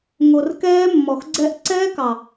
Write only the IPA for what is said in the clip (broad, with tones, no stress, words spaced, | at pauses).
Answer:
ŋo˨rkɛː˦ mːɔ˨xɡ͡ǀɛ˦ʔ ǀɛː˦kɑ˨